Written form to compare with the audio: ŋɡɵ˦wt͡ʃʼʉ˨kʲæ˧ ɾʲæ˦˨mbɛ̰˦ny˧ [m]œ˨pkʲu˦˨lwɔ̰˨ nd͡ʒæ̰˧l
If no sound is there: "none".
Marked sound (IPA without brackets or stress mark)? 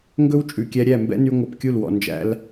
ŋʷ